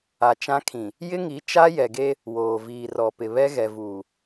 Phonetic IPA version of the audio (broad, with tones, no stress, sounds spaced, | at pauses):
a˨ t͡ʃ ã˦ kʰ ĩ˨ | j ɪ˦ ŋ i˨˦ t͡ʃ a˦ j ɛ˨ ɡ e˦ | w oː˨ v iː˨ r ɔ˨ p ɪ˨ β ɛ˦ ɣ ɛ˨ v uː˨